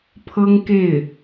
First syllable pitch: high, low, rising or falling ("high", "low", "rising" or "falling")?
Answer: high